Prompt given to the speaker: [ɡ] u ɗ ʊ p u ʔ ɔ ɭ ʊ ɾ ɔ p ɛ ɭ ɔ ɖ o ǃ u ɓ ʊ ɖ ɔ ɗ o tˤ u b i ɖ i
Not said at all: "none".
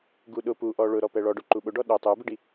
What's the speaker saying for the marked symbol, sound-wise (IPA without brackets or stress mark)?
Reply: ɡ